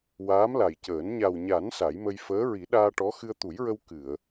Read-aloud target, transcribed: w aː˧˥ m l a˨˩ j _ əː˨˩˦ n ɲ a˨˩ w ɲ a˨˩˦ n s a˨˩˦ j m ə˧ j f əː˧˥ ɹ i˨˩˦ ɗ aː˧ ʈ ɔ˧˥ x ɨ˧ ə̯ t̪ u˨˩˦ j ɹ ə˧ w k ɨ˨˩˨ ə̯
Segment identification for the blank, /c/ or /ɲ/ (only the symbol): c